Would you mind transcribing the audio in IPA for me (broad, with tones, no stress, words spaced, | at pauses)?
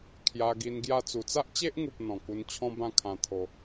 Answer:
kʰja˧ɡi˧nɡja˥˧ t͡su˨˩t͡sa˦ʔt͡ɕe˦ʔŋu˨p̚ n̪ɔ̃˨˩ku˧n t͡ɕʰɔ̃˦bã˦kʰã˧ t̪ʰo˧